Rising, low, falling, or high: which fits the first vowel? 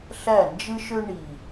falling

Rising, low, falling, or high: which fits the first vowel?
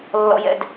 low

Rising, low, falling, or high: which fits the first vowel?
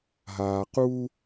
low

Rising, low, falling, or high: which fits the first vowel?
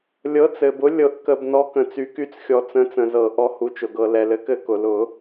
rising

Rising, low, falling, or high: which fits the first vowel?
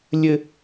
high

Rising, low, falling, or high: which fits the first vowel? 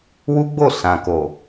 high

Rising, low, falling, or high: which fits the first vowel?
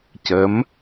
rising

